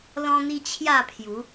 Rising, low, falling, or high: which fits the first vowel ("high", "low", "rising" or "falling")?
high